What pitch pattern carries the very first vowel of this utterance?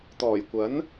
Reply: low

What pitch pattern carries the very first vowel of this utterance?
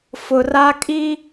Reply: low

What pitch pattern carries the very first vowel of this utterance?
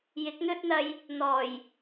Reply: rising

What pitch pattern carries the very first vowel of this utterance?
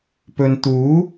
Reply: low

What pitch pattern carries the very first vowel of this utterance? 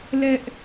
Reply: high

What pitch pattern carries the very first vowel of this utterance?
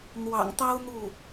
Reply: low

